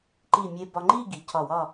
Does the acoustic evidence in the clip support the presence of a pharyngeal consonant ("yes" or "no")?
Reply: no